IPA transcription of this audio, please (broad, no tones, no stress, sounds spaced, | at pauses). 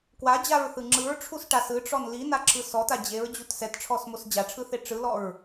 k w a d͡ʑ a ɹ θ ɯ ŋ͡ǁ ɯ ɹ ʈ͡ʂʰ u s ʈ a s ɯ ʈ͡ʂ ɔ n l i n a ǁʰ ɯ s ɔ t a d͡ʑ e ɹ d͡ʑ u t s ɛ t ʈ͡ʂʰ ɔ s m o s d͡ʑ a ʈ͡ʂʰ ɯ θ e ʈ͡ʂ ɯ l ɔ ɹ